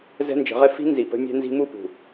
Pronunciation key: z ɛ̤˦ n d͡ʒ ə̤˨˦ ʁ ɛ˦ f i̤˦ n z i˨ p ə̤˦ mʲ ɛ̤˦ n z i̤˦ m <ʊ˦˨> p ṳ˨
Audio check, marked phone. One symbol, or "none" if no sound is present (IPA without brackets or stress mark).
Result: u˦˨